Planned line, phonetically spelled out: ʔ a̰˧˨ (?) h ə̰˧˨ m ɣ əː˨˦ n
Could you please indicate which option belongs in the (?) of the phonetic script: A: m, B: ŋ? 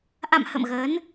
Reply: A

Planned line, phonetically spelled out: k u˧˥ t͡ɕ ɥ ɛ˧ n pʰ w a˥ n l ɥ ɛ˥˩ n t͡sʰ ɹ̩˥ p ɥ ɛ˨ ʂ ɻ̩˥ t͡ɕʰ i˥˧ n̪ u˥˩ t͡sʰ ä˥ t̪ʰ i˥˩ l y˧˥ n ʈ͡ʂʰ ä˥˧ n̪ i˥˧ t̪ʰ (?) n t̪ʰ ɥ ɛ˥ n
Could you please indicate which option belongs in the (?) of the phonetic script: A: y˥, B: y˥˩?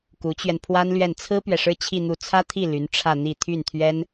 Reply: B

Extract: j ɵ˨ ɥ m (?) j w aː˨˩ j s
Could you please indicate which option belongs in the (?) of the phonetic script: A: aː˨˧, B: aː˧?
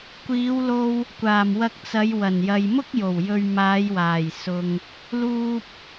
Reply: A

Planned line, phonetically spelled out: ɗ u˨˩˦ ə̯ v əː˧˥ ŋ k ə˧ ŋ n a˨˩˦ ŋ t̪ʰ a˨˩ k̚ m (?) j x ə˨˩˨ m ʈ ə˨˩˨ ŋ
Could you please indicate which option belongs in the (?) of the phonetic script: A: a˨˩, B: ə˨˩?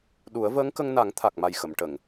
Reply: A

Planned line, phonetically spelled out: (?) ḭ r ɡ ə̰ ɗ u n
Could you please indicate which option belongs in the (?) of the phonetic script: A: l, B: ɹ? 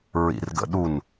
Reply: B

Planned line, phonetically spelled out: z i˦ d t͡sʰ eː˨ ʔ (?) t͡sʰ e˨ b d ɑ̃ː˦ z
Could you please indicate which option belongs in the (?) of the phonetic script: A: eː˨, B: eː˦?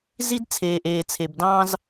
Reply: A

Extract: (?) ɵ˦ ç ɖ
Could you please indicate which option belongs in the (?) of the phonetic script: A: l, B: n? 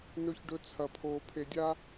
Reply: B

